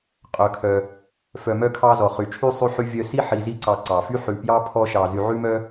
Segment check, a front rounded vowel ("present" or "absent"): present